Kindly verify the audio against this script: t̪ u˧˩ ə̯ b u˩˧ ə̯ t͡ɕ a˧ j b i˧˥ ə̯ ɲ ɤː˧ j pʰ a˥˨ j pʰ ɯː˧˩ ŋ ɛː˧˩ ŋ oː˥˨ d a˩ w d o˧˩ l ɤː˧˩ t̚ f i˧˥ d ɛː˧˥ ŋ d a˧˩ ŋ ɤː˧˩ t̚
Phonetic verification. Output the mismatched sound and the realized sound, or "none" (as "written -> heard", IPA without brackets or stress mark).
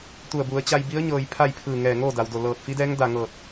none